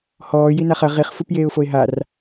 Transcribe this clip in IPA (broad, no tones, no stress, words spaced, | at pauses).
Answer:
hɔː jinaχɐ ʁiχ fupjeːʊ̯foɪ̯ɦar